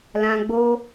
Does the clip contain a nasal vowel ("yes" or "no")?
yes